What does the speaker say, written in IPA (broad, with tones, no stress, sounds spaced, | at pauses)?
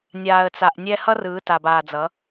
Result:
nʲ aː˨ ə̯ t͡s a˨ ʔ nʲ ɛ˦ h ʌ˦ r ɯː˨˦ t a˨ b aː˨ d͡z ʌ˨˦